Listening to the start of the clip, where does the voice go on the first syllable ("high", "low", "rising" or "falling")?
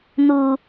low